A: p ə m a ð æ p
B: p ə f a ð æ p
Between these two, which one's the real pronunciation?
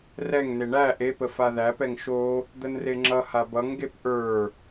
B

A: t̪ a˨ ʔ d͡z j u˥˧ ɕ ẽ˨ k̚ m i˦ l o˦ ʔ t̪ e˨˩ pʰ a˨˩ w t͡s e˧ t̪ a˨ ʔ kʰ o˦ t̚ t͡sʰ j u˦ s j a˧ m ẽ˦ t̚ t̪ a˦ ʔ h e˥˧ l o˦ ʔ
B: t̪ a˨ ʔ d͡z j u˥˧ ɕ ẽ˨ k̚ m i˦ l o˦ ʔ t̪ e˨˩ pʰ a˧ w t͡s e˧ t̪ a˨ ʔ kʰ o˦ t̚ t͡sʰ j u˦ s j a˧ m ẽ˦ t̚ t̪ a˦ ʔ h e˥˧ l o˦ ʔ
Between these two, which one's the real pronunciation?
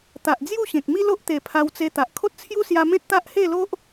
B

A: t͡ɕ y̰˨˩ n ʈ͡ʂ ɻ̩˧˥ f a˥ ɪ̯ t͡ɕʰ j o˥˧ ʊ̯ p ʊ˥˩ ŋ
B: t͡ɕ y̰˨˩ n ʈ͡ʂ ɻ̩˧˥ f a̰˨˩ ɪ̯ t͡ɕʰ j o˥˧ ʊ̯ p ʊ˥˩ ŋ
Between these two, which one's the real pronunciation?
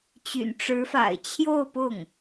B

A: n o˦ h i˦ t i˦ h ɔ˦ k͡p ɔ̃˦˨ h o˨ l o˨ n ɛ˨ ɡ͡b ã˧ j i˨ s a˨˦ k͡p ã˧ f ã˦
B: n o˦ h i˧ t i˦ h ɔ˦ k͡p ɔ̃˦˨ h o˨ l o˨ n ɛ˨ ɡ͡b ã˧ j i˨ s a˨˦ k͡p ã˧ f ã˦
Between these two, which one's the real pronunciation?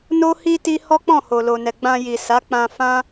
A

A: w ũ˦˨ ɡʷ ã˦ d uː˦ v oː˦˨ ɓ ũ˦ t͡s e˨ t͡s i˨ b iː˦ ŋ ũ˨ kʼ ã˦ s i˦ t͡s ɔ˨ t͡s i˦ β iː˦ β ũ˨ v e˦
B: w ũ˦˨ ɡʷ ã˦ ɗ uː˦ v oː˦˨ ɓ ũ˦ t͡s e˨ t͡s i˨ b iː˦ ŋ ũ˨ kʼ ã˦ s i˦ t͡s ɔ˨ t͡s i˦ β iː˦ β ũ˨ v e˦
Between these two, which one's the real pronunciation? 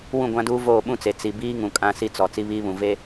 A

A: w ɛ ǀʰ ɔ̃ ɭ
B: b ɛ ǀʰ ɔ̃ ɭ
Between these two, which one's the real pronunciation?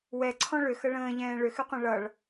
A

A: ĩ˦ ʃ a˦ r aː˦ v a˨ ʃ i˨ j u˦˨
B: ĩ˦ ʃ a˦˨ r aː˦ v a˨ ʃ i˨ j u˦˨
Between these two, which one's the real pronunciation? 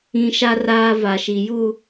A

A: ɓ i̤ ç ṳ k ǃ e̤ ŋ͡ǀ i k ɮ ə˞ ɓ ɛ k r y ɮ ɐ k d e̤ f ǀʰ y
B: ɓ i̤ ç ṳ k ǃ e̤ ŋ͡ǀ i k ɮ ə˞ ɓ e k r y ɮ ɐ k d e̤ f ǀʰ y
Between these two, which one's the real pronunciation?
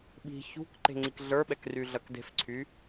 A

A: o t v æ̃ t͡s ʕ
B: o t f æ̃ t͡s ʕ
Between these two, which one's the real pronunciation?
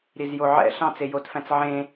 B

